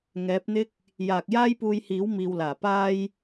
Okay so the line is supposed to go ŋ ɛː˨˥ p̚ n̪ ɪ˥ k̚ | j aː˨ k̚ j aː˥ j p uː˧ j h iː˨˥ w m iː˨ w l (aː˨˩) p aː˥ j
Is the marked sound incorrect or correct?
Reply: correct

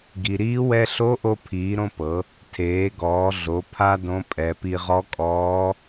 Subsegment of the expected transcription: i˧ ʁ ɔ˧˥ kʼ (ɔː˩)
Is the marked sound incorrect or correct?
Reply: incorrect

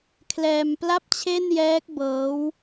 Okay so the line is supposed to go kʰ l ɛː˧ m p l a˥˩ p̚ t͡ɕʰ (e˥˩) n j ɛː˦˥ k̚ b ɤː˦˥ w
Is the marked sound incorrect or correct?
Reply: correct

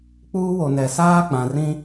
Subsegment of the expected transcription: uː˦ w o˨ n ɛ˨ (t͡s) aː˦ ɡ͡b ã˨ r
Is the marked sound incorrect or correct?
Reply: incorrect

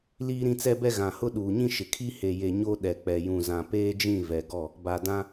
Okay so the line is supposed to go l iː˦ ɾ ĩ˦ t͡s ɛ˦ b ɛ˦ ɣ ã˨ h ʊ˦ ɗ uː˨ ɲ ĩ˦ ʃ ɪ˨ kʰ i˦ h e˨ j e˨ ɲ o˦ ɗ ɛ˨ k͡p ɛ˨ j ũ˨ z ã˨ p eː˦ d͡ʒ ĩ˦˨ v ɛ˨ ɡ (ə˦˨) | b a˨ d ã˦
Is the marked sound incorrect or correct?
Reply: incorrect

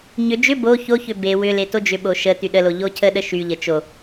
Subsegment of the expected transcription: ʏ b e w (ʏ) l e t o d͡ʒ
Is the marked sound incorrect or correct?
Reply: correct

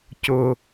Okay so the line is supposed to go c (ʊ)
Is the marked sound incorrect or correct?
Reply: correct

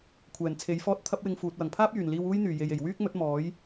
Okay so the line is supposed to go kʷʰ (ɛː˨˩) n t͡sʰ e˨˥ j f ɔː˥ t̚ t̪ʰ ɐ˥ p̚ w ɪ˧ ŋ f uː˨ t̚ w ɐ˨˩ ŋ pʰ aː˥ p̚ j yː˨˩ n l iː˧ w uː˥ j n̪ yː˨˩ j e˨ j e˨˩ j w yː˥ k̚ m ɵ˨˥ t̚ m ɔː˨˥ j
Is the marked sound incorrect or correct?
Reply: correct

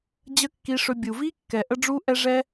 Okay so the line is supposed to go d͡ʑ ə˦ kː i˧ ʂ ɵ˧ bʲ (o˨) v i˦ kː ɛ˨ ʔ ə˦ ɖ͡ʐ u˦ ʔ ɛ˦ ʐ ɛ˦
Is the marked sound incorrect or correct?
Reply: incorrect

